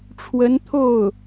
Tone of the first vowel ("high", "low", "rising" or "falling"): rising